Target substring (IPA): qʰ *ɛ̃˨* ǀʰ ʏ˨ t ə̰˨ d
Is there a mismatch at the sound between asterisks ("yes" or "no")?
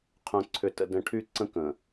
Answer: yes